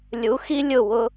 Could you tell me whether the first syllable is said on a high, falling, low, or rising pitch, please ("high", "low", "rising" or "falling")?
rising